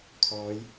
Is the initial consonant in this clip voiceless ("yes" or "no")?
yes